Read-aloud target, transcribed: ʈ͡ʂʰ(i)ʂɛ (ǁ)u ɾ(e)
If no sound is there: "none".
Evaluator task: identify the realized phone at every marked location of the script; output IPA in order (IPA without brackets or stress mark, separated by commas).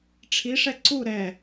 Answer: i, ǀ, ɛ